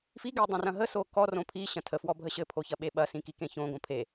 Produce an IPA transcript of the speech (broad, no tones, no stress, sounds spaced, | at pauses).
f i ɡ e dˤ õ r ɐ̃ ɦ ə s o k ɔ r õ pʰ i ɕ ɐ̃ tʰ ə f w ɔ bʱ ə ɕ ɘ pʰ o ç ɐ ɓ e ɓ ɐ s ĩ k i k ẽ ç õ ɡ õ pʰ e